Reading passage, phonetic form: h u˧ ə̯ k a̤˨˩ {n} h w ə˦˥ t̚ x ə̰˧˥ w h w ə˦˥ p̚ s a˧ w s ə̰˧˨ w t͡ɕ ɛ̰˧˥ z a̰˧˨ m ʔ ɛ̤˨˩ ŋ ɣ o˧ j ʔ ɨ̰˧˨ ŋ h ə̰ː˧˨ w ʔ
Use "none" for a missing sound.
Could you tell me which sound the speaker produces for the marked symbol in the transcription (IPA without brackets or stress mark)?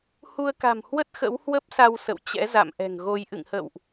m